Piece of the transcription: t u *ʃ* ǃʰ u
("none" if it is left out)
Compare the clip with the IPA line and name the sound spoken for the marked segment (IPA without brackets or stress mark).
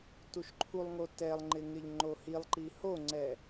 ʃ